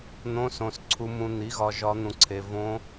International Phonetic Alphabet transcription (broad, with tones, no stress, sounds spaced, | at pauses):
n̪ õ˧˥˧ s õ˨ s ǀʰ u˨ m ũ˨ n̪ i˩˥ ɣ ɒ˨ ʒ ɒ˧˥ n̪ ũ˨ ǀʰ e˨ v õ˧˥